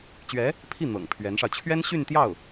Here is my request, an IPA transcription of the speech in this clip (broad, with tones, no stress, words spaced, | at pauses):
t͡ɕɥɛ˧˥ | pʰi˥˩ n̪ɤ̰˨˩ŋpʰɥɛ˧˥nʂɑ˧ʊ̯ t͡ɕʰɥɛ˥nɕy˥˧nt̪jɑ˥˩ʊ̯